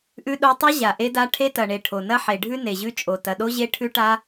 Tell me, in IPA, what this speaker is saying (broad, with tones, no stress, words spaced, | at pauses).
ʔʉ˦˥ɗo˦˥ tˤɐ˦˥ ʑa˨˩ʔe˦˥da˦˥ ʈʰe˦˥tɐ˨˩ɳe˨˩ ʈʰo˨˩ nɐ˦˥ħe˨˩ɖʱʉ˦˥ ne˨˩ʑʉ˦˥t͡ʃʼo˨˩ tɐ˨˩ɗo˦˥ʑe˦˥ ʈʰʉ˦˥ʈa˦˥